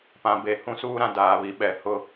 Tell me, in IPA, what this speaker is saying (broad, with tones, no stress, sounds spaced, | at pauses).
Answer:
p ã˨ b e˨ h ũ˦ s uː˦ ɾ ã˨ d aː˨ β i˨ ɓ ɛ˨ h ʊ˦